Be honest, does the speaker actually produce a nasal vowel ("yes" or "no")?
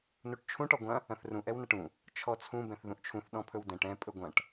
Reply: yes